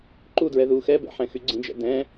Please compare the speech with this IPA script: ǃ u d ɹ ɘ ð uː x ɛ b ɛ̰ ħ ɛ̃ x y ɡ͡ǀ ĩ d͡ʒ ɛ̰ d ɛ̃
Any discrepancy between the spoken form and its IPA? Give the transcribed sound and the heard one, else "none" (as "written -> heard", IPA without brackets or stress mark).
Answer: ɘ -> ɛ